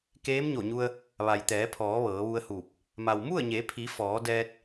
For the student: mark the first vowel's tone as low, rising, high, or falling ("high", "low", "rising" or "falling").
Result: rising